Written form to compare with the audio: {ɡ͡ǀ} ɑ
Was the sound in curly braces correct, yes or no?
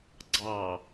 yes